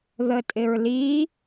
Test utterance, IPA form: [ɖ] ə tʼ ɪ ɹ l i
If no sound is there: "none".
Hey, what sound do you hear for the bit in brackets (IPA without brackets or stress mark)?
ð